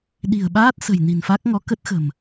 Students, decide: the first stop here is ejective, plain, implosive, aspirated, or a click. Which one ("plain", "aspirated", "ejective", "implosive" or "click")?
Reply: implosive